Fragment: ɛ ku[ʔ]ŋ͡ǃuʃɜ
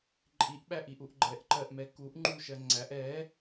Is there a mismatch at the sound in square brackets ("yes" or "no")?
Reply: no